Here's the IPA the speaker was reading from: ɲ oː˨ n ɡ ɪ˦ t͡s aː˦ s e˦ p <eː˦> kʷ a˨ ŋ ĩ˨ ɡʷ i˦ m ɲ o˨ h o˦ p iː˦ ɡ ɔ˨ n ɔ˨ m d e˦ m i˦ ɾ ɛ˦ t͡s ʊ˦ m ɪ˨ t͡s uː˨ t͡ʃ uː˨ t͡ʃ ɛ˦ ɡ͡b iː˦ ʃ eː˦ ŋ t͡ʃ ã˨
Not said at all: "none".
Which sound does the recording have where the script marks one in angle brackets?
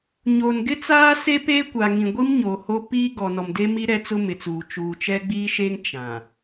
eː˦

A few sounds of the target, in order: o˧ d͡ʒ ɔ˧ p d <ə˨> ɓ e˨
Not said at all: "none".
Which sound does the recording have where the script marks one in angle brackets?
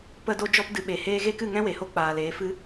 ɨ˨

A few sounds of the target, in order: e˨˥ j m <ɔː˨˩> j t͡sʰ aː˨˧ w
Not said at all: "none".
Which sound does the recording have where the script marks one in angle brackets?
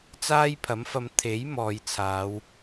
ɔː˨˧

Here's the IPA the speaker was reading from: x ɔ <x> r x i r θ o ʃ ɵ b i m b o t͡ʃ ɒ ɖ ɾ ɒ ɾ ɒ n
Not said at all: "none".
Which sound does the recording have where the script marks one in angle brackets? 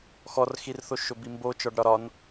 none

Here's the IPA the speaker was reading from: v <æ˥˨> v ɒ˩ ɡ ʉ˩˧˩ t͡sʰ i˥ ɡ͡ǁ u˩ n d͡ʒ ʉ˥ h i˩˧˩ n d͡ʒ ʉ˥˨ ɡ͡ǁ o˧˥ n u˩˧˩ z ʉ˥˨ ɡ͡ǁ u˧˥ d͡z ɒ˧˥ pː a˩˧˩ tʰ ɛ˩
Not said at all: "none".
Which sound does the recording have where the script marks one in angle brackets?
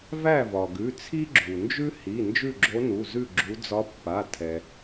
æ˥˨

